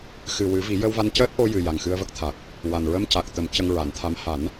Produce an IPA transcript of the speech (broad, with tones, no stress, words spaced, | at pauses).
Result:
xɨ˨˩wɨ˨˩˦ vi˨˩˦jə˧wva˧ncəː˦˥t̚ ʔo˧jɨ˨˩ ja˨˩ŋxɨ˧ə̯və˦˥k̚t̪ʰa˨˩k̚ | wa˨˩n ɹə˧mca˨˩k̚ t̪ə˨˩˦m cə˧ŋɹa˨˩˦nt̪ʰa˧˥m ha˨˩˦n